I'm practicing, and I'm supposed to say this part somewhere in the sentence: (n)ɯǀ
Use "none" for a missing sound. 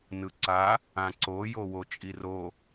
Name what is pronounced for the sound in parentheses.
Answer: n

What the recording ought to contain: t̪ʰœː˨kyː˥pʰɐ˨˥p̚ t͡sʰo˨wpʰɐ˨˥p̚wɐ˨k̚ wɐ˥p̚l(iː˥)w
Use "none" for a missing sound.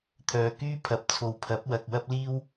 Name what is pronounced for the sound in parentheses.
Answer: iː˥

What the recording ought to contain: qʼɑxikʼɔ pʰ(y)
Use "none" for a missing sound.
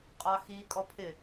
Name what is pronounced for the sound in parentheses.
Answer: ɪ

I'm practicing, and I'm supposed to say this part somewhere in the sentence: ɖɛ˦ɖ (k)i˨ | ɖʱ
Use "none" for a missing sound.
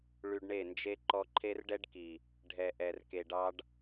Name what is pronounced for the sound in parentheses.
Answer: k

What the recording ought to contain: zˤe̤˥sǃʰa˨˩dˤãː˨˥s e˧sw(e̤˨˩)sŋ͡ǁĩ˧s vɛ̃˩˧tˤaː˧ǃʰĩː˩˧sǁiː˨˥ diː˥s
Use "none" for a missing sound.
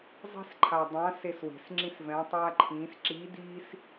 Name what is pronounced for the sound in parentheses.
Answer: e̤˨˩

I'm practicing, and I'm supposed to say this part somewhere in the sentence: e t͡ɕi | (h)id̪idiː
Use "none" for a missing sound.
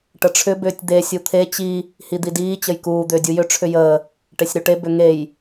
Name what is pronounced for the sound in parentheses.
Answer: h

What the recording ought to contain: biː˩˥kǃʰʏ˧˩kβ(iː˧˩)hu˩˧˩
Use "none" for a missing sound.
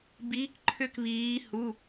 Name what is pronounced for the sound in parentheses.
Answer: iː˩˧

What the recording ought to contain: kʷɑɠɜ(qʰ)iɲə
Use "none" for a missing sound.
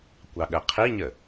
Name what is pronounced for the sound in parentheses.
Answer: qʰ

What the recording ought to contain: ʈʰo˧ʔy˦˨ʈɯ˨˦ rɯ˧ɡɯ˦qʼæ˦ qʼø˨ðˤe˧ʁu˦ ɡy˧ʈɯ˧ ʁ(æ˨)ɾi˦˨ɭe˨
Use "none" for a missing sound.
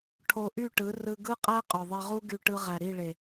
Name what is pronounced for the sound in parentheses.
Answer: æ˨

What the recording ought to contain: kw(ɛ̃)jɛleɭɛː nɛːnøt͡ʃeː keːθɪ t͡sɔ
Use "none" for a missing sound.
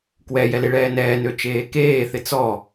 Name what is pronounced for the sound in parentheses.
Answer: ɛ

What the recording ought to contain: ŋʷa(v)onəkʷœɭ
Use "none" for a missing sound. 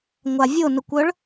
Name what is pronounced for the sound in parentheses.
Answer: vʲ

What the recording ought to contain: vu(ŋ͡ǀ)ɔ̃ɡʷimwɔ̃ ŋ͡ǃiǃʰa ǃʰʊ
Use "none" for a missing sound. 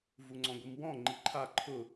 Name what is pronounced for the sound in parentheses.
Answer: ŋ͡ǀ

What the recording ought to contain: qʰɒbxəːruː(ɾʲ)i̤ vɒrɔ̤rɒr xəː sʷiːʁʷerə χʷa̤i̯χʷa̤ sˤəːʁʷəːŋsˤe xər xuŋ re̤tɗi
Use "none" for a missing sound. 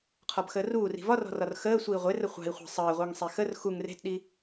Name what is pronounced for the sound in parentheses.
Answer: r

